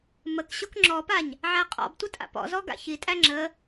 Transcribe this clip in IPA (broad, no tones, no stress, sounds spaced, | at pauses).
m ə k ɕ o k ŋ͡ǁ ɔ p a ɲ | ʕ æ qʼ ɔ̰ b tʷ ə tʼ a̰ p ɔ̰ z ɔ ɡ a̰ ç i tʼ æ ŋ͡ǁ ə